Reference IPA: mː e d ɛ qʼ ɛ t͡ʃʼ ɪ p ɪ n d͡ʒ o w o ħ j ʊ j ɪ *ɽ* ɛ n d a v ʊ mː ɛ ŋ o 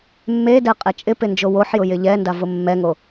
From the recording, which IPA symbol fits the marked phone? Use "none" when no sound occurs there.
ʎ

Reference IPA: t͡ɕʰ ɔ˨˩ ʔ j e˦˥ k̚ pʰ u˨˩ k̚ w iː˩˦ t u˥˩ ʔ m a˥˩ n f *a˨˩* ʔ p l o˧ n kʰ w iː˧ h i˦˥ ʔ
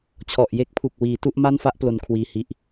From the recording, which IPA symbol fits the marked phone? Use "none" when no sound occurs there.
a˥˩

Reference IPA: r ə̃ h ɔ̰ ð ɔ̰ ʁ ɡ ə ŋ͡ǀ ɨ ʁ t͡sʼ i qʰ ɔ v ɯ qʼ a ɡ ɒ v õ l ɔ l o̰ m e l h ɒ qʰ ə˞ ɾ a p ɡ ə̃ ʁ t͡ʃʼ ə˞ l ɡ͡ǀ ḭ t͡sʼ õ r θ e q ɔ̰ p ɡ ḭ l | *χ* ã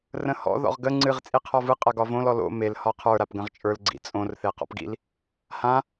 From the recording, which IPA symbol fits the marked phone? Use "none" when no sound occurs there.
h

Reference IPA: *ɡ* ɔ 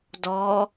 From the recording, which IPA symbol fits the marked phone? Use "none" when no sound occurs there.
d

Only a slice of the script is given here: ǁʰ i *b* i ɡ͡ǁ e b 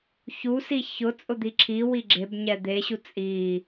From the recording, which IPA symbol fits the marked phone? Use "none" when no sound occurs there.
w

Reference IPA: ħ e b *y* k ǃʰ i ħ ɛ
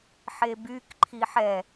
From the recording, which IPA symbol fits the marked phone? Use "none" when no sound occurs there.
y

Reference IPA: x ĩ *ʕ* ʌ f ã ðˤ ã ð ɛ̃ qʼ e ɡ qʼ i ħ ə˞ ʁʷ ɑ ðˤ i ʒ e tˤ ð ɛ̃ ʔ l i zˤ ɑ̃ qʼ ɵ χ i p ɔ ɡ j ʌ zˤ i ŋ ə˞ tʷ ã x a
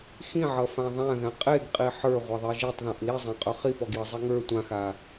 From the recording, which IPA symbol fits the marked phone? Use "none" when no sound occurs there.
ʕ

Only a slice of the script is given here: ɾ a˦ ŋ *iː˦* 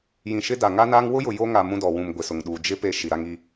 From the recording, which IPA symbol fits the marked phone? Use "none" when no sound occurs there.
i˦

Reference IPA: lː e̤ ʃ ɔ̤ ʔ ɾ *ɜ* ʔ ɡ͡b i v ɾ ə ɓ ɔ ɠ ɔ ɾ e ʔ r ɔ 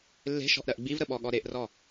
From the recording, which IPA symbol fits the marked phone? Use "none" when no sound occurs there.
ɜ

